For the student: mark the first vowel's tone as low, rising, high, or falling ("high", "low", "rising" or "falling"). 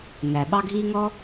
low